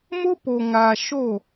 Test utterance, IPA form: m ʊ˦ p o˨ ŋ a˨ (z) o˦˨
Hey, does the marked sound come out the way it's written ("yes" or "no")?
no